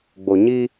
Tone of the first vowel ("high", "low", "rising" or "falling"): low